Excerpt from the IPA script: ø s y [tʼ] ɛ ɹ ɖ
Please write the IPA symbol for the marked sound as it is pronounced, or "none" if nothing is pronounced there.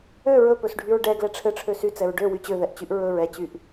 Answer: t͡s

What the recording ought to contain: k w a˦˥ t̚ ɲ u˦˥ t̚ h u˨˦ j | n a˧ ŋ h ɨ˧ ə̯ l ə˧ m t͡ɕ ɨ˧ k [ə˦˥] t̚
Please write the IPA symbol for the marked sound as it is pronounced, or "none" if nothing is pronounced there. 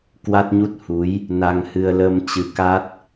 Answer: a˦˥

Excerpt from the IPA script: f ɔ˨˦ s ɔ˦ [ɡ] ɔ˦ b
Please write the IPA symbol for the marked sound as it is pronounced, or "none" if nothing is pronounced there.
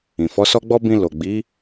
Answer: ɡ͡b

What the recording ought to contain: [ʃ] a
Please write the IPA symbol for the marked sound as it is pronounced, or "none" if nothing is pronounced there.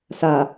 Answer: s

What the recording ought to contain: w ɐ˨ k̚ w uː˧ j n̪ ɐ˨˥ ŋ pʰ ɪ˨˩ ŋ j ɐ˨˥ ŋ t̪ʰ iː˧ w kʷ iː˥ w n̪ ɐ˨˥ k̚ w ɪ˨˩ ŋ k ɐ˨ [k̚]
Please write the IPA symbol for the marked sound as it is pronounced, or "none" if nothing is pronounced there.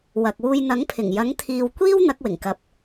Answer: p̚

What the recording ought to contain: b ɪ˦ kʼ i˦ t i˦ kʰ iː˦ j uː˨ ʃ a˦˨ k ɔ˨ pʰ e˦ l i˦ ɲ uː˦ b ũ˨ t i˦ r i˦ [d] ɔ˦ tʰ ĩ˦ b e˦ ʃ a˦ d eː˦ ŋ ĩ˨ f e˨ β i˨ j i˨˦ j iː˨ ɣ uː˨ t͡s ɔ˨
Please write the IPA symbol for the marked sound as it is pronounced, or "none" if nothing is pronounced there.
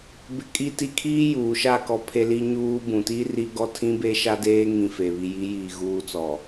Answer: ɡ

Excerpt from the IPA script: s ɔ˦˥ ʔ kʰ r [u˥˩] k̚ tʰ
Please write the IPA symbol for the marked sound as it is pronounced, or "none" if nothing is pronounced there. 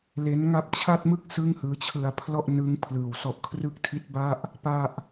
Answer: ɯ˥˩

